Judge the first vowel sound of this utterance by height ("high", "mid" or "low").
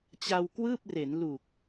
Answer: low